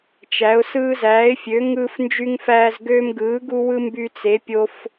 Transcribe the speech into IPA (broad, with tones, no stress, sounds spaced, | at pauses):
t͡ʃ æ˨˥ ʊ̯ s ɯː˦ z æː˨˥ ɪ̯ fʲ ø˨˥ ŋ ɯː˦ f n d͡ʒ y˦ ŋ f æː˦ z ɡ øː˦ m ɡ ɯː˨˥ ɡ u˦ w ɯ˦ m b y˦ t͡s e˨˥ pʲ o˦ f